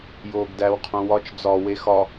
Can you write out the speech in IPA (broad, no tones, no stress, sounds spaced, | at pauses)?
j oː ɡ d æ w qʰ õ w ɒ t͡ʃ d͡z ɒ w e x ɒ